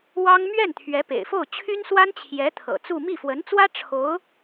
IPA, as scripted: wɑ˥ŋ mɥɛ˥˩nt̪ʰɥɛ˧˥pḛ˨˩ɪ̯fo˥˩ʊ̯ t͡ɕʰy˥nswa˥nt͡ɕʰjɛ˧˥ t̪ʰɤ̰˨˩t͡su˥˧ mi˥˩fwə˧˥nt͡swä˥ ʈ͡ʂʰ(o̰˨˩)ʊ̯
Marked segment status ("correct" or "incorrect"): incorrect